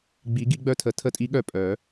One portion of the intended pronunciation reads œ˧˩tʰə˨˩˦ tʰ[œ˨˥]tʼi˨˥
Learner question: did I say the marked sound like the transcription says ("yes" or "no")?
no